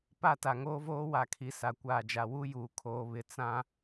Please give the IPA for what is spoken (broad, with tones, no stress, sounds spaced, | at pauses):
p a˦˨ t a˨ ŋ oː˦ v oː˦ w a˨ kʰ i˨ s a˨ kʷ aː˨ d͡ʒ a˨ w u˦ j uː˨ kʰ oː˨ β ɪ˨ t͡s ã˦